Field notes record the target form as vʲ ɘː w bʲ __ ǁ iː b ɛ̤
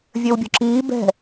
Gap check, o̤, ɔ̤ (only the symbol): o̤